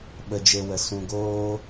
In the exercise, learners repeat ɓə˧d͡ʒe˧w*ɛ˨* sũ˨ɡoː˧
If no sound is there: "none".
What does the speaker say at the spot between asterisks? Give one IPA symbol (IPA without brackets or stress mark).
ə˨